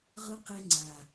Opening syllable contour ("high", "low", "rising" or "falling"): high